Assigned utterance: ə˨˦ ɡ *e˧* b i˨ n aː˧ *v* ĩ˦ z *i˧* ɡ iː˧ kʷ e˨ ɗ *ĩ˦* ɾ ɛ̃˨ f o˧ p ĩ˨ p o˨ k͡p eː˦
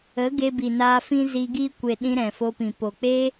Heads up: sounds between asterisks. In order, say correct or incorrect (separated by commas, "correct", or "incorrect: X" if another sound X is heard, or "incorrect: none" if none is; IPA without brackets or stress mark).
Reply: correct, incorrect: f, correct, incorrect: ĩ˧